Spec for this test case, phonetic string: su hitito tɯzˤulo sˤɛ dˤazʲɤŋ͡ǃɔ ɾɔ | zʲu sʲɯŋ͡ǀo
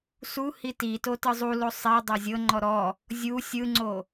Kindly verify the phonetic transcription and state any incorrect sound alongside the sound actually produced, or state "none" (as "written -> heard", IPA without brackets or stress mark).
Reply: none